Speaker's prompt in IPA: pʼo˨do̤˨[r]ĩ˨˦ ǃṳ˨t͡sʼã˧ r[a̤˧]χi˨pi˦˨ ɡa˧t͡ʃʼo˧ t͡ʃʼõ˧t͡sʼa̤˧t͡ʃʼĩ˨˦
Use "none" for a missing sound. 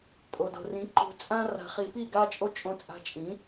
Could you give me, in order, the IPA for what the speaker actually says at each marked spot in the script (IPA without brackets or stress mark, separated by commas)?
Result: r, a̤˨